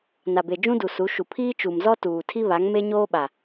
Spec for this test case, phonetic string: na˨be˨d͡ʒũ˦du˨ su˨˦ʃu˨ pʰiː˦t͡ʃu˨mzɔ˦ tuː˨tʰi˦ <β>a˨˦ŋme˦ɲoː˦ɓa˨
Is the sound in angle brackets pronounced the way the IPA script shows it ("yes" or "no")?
yes